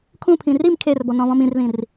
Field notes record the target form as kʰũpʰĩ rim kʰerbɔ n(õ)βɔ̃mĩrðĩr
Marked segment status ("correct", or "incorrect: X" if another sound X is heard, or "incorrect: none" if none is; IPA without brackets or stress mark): incorrect: ɔ̃